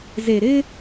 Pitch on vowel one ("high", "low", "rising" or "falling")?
low